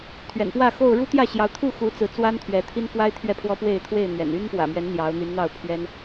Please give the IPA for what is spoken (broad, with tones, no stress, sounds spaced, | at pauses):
t̪ʰ ɥ ɛ̰˨˩ n p w ä˥˨ x o˥˨ ʊ̯ ɻ u˦ t̪ j ä˥˨ ɕ j ɑ˨˦ ʊ̯ t̪ʰ u˥˨ x u˨˦ t͡s ɹ̩˨˦ t͡s w a˦ n t̪ʰ ɥ ɛ˨˦ t̪ʰ i˦ n f w a˦ ɪ̯ t̪ʰ ɥ ɛ˥˨ pʰ w ɔ˦ p w e˥˨ ɪ̯ t̪ʰ w e˥˨ ɪ̯ n̪ ɥ ɛ̰˨˩ n y˦ n p w ä̰˨˩ m ɥ ɛ˨˦ n n̪ j ɑ˨˦ ʊ̯ n̪ y˨˦ n n̪ ɑ˥˨ ʊ̯ pʰ ɥ ɛ˦ n